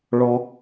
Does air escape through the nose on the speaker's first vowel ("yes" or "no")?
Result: no